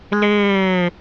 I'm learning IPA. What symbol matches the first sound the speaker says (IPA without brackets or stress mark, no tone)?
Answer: l